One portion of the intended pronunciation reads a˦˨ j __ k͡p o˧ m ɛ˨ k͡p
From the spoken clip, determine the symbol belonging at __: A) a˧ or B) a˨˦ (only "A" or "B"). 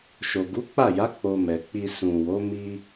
B